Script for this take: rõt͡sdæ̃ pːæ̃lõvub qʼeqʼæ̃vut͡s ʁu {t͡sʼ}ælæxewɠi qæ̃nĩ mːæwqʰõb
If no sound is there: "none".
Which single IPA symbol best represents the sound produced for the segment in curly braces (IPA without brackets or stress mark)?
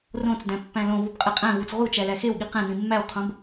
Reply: t͡ʃ